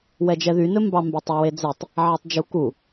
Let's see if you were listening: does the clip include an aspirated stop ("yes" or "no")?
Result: no